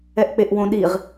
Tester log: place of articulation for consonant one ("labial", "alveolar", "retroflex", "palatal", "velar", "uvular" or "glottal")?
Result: glottal